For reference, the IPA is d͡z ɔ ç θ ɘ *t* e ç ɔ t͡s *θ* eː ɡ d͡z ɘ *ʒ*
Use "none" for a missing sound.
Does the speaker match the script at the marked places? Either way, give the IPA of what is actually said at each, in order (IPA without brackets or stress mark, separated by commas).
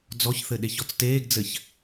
ɗ, t, ç